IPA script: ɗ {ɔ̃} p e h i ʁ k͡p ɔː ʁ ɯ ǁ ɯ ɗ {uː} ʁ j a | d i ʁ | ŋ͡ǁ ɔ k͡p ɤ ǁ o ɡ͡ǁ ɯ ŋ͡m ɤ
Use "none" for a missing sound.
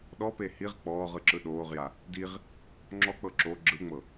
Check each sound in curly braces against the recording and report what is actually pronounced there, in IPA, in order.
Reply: ɔ, oː

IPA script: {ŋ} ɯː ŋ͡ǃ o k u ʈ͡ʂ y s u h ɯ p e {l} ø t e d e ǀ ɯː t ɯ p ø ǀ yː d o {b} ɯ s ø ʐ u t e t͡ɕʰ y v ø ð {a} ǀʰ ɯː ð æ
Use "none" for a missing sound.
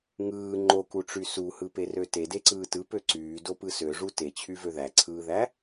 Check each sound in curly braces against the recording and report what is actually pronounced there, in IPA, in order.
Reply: ŋ, r, p, æ

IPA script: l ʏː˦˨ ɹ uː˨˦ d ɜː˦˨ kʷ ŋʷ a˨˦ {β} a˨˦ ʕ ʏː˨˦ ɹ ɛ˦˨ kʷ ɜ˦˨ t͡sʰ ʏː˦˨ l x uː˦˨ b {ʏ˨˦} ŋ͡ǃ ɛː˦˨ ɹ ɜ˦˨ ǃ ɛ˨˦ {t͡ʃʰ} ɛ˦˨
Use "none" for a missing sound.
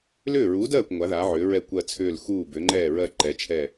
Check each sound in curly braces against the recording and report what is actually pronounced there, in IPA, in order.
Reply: ð, ʏ˨˦, t͡ʃʰ

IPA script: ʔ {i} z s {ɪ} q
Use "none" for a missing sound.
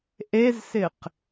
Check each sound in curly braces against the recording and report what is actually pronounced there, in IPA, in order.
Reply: e, ɪ

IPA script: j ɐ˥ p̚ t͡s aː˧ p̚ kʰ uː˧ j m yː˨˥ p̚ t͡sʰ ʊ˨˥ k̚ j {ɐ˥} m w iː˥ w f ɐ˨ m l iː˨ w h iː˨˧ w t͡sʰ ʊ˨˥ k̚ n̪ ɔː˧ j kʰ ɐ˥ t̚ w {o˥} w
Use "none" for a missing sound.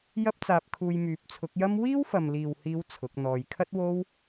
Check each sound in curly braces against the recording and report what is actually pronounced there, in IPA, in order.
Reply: ɐ˥, o˥

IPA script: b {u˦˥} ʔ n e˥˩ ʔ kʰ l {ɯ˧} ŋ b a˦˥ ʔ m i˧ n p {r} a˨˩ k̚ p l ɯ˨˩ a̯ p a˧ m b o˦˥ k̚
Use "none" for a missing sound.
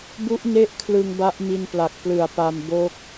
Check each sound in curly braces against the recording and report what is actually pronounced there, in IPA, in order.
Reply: u˦˥, ɯ˧, l

